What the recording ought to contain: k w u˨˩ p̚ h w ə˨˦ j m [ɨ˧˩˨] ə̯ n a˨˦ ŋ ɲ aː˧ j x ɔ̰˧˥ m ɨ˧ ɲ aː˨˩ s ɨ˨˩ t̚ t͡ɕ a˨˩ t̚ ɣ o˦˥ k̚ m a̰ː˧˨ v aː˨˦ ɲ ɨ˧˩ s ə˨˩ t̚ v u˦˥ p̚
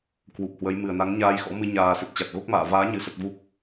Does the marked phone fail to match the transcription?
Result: yes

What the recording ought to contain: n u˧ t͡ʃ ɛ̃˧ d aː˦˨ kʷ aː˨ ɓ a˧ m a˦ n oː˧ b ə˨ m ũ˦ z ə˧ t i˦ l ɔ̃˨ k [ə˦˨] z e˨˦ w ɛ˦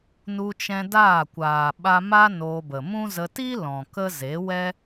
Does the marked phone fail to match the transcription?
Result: yes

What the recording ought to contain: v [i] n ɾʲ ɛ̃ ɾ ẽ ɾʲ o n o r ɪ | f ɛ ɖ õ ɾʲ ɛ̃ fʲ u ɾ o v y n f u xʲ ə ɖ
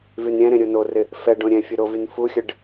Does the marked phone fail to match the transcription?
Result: yes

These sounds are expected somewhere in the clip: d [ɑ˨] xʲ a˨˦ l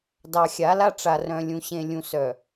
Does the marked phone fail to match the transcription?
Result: no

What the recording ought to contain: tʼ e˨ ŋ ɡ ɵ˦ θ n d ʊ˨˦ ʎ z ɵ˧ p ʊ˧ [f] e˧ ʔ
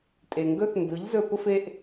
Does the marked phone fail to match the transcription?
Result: no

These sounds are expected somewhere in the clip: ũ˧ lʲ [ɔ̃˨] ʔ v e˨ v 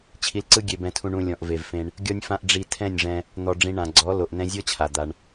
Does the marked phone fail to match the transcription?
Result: no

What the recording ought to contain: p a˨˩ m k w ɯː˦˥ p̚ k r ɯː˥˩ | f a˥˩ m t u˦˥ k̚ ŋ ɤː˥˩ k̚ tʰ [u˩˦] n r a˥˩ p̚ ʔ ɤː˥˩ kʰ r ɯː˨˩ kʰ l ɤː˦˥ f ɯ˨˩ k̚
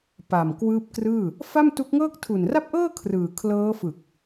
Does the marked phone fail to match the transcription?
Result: yes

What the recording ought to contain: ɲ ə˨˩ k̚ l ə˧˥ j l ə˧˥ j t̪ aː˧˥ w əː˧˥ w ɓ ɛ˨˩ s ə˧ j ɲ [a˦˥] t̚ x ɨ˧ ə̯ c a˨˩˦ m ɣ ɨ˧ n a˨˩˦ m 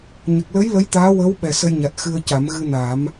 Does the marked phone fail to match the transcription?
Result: yes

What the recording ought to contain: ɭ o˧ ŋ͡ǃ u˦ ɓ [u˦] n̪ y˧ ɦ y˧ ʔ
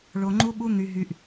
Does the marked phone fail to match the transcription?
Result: no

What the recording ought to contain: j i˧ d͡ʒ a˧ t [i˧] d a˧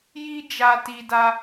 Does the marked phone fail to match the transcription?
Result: no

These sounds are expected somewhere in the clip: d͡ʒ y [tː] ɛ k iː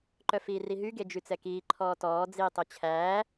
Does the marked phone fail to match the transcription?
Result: yes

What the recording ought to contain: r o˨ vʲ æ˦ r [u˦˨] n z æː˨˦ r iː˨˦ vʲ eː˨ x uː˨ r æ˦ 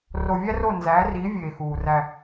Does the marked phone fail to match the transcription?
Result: yes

